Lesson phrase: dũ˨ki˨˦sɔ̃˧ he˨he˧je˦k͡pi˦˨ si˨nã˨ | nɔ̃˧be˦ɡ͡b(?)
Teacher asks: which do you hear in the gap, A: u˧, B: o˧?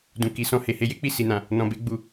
A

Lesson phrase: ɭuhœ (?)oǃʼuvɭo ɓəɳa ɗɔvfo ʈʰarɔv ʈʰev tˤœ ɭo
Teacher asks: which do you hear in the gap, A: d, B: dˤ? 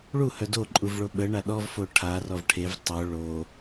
A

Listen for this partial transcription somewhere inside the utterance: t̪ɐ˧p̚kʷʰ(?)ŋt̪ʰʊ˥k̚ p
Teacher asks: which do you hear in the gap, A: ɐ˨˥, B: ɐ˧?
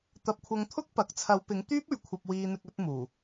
B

